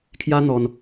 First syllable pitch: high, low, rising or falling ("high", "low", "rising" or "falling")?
high